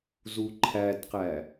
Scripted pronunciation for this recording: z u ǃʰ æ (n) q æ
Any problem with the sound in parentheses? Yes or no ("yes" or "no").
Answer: yes